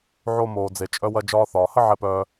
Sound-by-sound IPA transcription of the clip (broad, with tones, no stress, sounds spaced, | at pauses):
ʕ o˧ m oː˩ d͡z e˩ t͡ʃʼ œ˧ w ɐ˧ d͡ʒ ɒː˧ θ ɒː˩ h ə˥ ʕ ɛ˧ p œː˧